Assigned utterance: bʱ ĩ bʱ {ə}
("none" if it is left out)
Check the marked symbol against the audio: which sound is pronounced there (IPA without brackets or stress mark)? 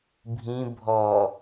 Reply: ɔ